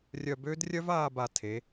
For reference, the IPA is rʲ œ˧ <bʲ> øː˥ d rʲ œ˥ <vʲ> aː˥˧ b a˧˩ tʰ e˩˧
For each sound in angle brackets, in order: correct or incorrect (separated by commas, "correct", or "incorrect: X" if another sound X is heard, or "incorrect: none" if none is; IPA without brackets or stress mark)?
incorrect: b, incorrect: v